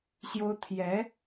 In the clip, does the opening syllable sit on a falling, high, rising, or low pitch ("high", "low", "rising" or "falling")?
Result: high